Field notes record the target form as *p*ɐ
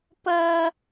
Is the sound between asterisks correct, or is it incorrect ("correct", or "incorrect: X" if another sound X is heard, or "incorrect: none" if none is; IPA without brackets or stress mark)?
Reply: correct